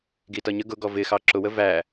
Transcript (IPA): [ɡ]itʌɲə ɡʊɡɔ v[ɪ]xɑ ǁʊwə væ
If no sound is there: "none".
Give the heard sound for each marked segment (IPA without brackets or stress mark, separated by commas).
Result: ɡ, ɪ